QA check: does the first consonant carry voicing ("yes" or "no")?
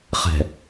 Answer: no